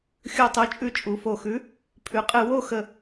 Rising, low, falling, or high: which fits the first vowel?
low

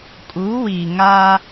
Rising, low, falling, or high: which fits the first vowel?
rising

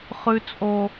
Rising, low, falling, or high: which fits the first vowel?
low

